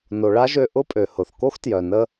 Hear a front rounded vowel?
yes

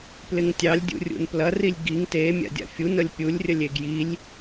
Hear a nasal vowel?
no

